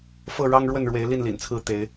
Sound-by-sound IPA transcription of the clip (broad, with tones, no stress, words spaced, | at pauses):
fɤ˥˨ɻɑ˦ŋ ɻwə˥˨nɻwe˨˦ɪ̯li˥˨nlḭ˨˩n t͡sʰɹ̩˥˨t̪e˨˦ɪ̯